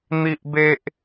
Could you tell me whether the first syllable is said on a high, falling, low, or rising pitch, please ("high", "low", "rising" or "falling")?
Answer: high